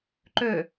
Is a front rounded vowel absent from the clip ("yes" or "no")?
no